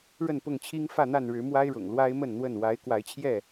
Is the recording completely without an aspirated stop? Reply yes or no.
no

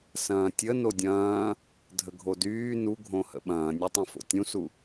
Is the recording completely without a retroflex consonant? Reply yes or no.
yes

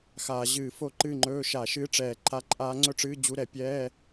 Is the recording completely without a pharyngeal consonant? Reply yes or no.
yes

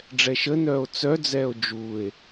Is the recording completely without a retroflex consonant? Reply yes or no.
no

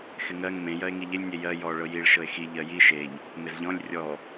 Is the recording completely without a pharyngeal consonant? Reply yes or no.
yes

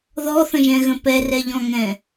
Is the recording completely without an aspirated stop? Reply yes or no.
yes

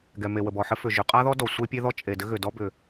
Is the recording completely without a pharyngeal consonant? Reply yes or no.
no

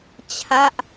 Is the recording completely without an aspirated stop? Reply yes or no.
no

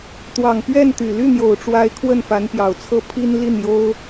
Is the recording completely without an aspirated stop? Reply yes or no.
no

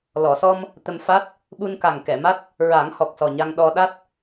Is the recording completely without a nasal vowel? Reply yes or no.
yes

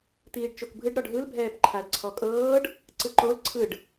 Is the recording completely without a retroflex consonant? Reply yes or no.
no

